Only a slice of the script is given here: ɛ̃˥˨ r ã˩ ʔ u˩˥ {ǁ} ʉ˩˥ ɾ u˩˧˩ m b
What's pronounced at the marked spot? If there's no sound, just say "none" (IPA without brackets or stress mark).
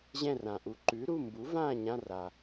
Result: ǃ